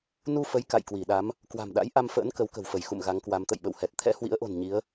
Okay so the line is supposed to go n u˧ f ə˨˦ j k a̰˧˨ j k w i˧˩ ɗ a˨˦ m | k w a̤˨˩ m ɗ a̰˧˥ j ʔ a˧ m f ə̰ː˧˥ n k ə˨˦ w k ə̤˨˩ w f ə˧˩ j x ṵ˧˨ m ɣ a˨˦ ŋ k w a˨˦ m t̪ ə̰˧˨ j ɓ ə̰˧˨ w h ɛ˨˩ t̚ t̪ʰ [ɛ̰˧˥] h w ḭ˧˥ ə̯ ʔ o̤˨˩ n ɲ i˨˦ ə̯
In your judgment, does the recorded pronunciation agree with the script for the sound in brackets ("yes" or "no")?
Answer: yes